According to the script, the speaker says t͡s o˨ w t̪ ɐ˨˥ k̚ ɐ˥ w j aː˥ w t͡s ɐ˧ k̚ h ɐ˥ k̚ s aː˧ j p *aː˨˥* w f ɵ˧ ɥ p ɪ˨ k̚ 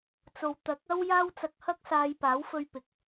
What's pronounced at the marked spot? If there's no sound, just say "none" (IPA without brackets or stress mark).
aː˨˥